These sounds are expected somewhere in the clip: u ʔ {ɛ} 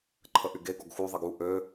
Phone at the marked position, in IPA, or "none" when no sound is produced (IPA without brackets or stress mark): ø